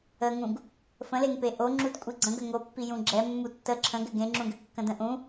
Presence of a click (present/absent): present